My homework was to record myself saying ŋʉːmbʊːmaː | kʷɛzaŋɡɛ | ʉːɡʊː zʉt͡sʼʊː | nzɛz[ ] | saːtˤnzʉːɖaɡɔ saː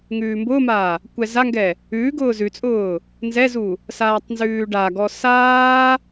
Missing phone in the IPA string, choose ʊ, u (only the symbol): u